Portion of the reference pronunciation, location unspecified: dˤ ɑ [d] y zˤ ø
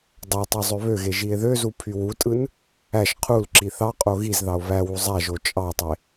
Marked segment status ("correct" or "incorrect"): incorrect